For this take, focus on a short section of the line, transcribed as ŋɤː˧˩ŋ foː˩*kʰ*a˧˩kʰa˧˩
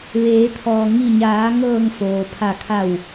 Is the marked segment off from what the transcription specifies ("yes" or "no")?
yes